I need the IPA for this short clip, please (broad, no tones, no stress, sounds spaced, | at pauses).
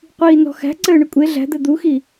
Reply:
qʷ iː n ɔ̤ x æ̤ ǀ ɘː ɳ ɘ kʷʼ e ɮ æ̤ d̪ ɘ d̪ u x i